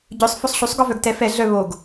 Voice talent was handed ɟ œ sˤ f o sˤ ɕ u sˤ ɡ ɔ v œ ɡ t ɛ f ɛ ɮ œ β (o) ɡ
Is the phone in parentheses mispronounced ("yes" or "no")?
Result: no